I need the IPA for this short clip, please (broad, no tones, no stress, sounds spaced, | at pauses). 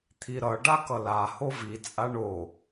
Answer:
t̪ʰ i ɾ ʌ ɖ a k ʌ l a h o v i t͡sʼ a ɳ o